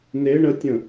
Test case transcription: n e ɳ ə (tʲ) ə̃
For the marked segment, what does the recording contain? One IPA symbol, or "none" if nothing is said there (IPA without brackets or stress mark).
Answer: tʲ